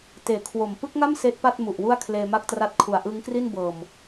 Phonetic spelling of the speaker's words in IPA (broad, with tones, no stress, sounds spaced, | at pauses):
t eː˨˩ kʰ w o˨˩ m p ɯ˦˥ k̚ ŋ a˥˩ m s eː˦˥ t̚ p a˥˩ t̚ m u˨˩ ʔ w u˥˩ a̯ kʰ l eː˧ m a˥˩ k̚ t r a˦˥ t̚ kʰ u˨˩ a̯ ʔ ɯ˦˥ ŋ k r i˥˩ n b ɤː˨˩ m